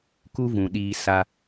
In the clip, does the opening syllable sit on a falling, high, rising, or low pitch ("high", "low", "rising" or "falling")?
high